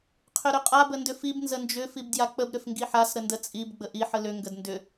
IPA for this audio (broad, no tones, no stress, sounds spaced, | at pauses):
qʰ ʏ ɾ ʏ qʼ a b ə n d ʏ f i b n z ə n d͡ʒ ʏ f i b d j a k͡p ə b ɾ ʏ f ŋ ɡ i ħ a s ɾ ə n d ə t͡sʼ i b ɡ͡b ə ʔ i ħ ə l ʏ ŋ ɡ ə d n d ʏ